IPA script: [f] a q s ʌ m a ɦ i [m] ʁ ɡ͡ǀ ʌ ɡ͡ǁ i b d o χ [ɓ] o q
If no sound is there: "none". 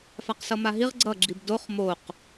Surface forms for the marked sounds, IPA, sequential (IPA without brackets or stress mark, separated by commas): f, none, m